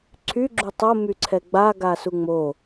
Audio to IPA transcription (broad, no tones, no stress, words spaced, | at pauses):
ǀʰyɡ͡ǁu tˤomyǀʰɛ ɡ͡baɡasu ŋ͡mo